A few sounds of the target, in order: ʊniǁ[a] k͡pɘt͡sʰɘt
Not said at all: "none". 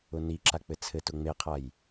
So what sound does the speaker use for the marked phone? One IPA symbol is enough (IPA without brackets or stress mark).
a